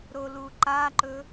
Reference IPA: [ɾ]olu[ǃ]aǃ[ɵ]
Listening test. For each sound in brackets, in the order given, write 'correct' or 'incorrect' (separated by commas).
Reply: correct, correct, correct